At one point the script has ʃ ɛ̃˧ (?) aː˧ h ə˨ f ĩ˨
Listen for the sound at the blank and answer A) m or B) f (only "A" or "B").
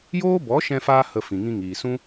B